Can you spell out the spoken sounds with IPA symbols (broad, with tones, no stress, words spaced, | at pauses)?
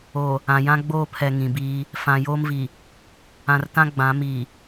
o˨ | ã˨ jã˦ɡ͡boː˦˨pʰɛ˨ ŋĩ˨biː˦ | fã˨joː˦mvi˨ | ã˨rtã˦ ɡ͡bã˨˦ mi˨